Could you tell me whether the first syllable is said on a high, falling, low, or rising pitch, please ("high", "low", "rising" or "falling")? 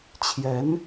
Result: rising